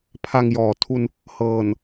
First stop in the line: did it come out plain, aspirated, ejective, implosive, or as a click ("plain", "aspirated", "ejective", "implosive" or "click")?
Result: aspirated